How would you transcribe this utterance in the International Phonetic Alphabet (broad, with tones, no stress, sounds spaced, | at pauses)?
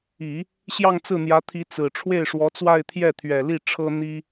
i˨˩˦ | ɕ j ɑ˥˧ ŋ t͡s ɹ̩˥˩ n̪ j ä˧˥ t̪ʰ i˧˥ t͡s ɹ̩˨˩ ʈ͡ʂʰ w e˥˩ ɪ̯ ʂ w ɔ˧˥ t͡s w a˥˧ ɪ̯ t̪ʰ j ɛ˥˩ t̪ʰ ɥ ɛ˨˩ l i˥˩ ʈ͡ʂʰ ɤ˥ n̪ i˥